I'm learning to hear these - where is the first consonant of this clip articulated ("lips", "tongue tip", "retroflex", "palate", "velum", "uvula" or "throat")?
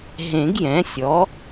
throat